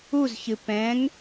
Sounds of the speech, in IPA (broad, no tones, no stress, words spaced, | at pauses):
uzçɨ pɛ̃ŋ